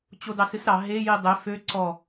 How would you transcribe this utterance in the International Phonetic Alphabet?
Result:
t͡ɕ o d ɑ s ɨ s ɾ ɑ ɦ e j i dˤ e f ø ǀ ɔ

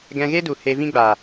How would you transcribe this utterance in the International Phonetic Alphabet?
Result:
ɡ ɛ̃˧ ɣ e˦ d u˨ h e˧ v ĩ˦ ɡ͡b aː˨

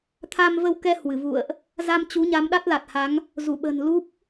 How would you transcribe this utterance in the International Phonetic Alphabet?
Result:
t̪ʰ a˧ m v ə˧ w k ɛ˧ h w ɨ˧˩ v ṵ˧˨ ə̯ ʔ | z a˧ m t͡ɕ u˨˦ ɲ a˨˦ m ɗ a˦˥ t̚ l a˨˩ t̚ h a˨˦ ŋ | z u˧˩ ɓ ə̤˨˩ n l u˦˥ p̚

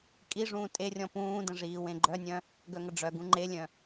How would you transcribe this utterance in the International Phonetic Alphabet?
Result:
kʼ i ʐ ũː tʼ e rʲ ɔ̃ p ũː d ə̃ ʐ iː w ẽ ɡ͡ǃ œ nʲ œ̃ | ɡ œ ŋ ə ɖ͡ʐ œ ɡ ũ ŋ͡ǃ e lʲ œ̃

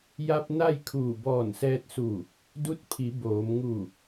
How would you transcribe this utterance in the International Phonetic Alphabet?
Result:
j a˧ p̚ n a˥˨ j kʰ uː˧˩ b ɔː˧˩ n s ɛː˧ t̚ s u˧˩ | d u˧˥ t̚ pʰ i˩˧ b oː˩˧ m ŋ u˧˩

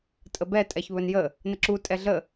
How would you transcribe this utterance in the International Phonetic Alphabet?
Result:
tʼ ə b ɛ tʼ ɛ ç β ɵ n j ə | n ə ǁ u tʼ ɛ ɮ ə

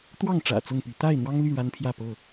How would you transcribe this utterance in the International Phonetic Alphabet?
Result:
t̪ w ɑ˥˨ ŋ ʈ͡ʂ ä̰˨˩ t͡s ʊ˥˨ ŋ p y˨˦ t̪ a˥˨ ɪ̯ n̪ w ɑ˦ ŋ l y˥˨ ɻ a˦ n pʰ j ä˥˨ p ɤ˥˨

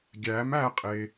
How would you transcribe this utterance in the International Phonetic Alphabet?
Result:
ɡʲ æ m æ qʼ e

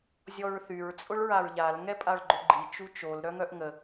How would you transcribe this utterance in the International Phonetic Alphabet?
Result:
zʲ ɔ ɹ θ y ɹ t͡sʼ ʊ ɭ ɹ a ɹ ʎ a l ŋ ɛ pʼ a ɭ ɡ͡ǃ ʏ ɡ͡ǃ i t͡ʃ u t͡ʃ o l ɾ œ ŋ œ ʔ ŋ ə

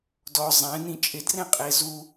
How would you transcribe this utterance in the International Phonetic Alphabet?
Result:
d ɔ zˤ ɛ̃ n ĩ t͡ʃʼ ɪ d r ɛ̃ qʼ e z u

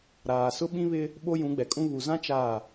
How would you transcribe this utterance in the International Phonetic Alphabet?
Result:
ɾ aː˨ s ʊ˦ ɓ ĩ˦ β ɪ˦ | ɓ o˦ j ũ˨˦ ɡ͡b ɛ˨ kʼ ũ˦ β u˨ z ã˦ t͡ʃ a˦˨

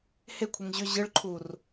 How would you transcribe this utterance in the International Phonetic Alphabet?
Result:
h e kʷʰ e ŋ ʑ ʏ ʑ ɨ ɭ ǃʰ u r

